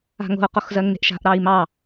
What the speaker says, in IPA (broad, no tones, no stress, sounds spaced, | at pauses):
a̤ ŋ o̤ u̯ q o x z ɜ ŋ n e̤ ʔ ʃ a̤ ʔ ɾ ɑ i̯ m ɑ